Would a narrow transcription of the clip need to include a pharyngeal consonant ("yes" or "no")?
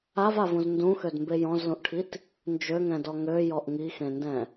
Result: no